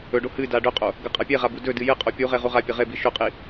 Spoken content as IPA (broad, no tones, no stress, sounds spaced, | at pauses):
ɵ ɖ o h ɨ d a ɖ ɵ qʼ o | ɡ ɐ qʼ a pʲ e ʁ a b u d ɵ d ɨ j ɨ qʼ o pʲ u ʁ e ʁ u ʁ a pʲ ɐ ʁ e b i ʃ o qʼ i